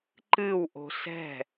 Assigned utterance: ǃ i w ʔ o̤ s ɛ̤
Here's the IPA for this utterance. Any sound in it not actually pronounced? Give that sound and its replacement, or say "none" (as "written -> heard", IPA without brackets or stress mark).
i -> ɨ